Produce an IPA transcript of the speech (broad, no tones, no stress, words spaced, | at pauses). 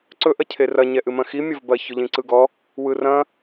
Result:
ǀɵ ʔɐcʰerɐ ɲɛʔɨmɐ̃xi mʲɐvbɐ çɵʎĩǀɯɡɔ | wɯrɐ̃